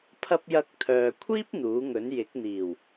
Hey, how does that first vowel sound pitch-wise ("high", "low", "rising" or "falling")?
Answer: high